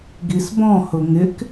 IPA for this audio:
ɡ i s b ɔ̃ h ʊ ŋ ɪ k

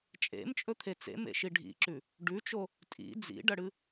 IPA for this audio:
t͡ʃʼ ḛ m t͡ʃʼ ɵ t̪ʰ e t͡s ḛ m ḛ ʃ i ɖʱ ḭ ǁ ʉ | ɖ ʉ t͡ʃ o | tʼ ḭ d͡z ḭ ɖ ɐ ɽ ɨ

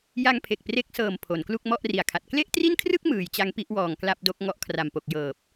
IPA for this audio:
j a˧ ŋ pʰ e˨˩ k̚ p r e˦˥ k̚ s ɤː˨˩ m pʰ o˩˦ n k l u˥˩ k̚ m ɔ˥˩ ʔ r i˨˩ a̯ kʰ a˨˩ t̚ k l e˥˩ ʔ t r i˥˩ n kʰ r ɯ˥˩ k̚ m ɯː˩˦ j t͡ɕ a˦˥ ŋ p i˦˥ ʔ w ɔː˨˩ ŋ k l a˥˩ p̚ d o˦˥ k̚ ŋ ɔ˦˥ ʔ kʰ r a˨˩ m p o˨˩ k̚ j ɤː˨˩ p̚

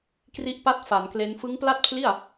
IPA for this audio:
k r i˦˥ ʔ p a˥˩ t̚ f a˩˦ n k l e˦˥ n f ɯ˦˥ ŋ p l a˥˩ t̚ pʰ l i˥˩ a̯

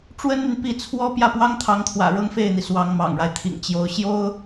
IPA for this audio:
ʈ͡ʂ w ə˥ n n̪ y˨ n p i˥˩ t͡sʰ w ɔ˥ p j ä˥˩ p w ɑ˥ ŋ t̪ʰ ɑ˧˥ ŋ t̪ʰ w ä̰˨˩ ɻ ɤ˥ ŋ f e˥˩ ɪ̯ n̪ i˩ s w ɑ˧˥ ŋ m ɑ̰˨˩ ŋ ɻ a˦ ɪ̯ t̪ʰ ḭ˨˩ ŋ t͡ɕ j o˧˥ ʊ̯ ɕ j o˥ ʊ̯

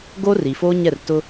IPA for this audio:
ɡ oː˦ r i˨ f oː˦ ɲ ɛ˦˨ r t ʊ˦

